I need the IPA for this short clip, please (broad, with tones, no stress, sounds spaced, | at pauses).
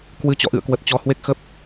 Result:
k w ɨ˨˦ t͡ɕ ɔ̰˧˨ ʔ ɨ̰˧˨ ə̯ k w ə˨˩ t̚ t͡ɕ ɔ˧ h w e˦˥ k̚ x ə˦˥ p̚